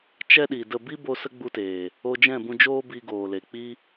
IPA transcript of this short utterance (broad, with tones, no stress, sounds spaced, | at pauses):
t͡ʃ ɛ˦ ɗ i˨ d ə˦˨ b i˦ b o˧ s ə˦ ɡ͡b u˧ t eː˨ | o˧ d͡ʒ ɛ̃˦˨ b ũ˧ d͡ʒ oː˦ b i˧ ɡ oː˨ l e˨ k͡p i˦